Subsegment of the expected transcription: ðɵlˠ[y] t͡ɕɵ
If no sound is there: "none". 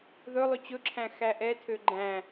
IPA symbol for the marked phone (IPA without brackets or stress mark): y